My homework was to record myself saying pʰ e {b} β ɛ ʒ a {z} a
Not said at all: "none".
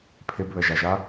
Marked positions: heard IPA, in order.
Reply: b, ʒ

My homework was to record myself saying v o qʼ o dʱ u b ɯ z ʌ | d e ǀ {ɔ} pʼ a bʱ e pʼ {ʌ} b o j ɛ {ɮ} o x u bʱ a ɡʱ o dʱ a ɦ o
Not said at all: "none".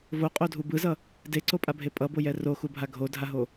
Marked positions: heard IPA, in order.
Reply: o, ʌ, r

